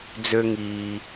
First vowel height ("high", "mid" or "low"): mid